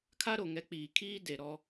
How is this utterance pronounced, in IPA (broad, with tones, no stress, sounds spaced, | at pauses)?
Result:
kʰ a˦ ɾ o˨ ŋ ɛ˨˦ k͡p iː˨ kʰ iː˦ d e˨ ɾ ɔ˦